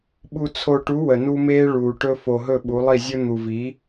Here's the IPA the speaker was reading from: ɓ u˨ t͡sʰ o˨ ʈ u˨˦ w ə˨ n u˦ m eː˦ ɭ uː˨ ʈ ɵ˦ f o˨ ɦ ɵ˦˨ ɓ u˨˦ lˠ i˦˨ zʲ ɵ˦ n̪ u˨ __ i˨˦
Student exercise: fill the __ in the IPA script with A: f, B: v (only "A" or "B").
B